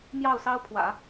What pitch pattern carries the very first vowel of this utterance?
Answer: falling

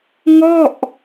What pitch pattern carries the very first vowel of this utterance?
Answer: falling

